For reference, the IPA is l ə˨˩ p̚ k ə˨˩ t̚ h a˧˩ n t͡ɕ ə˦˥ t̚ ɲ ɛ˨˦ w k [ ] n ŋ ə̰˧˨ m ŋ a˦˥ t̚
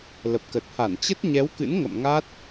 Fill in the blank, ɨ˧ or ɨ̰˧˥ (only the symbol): ɨ̰˧˥